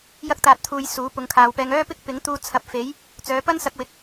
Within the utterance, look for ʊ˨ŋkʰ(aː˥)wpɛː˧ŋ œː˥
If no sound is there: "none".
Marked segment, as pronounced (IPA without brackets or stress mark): aː˨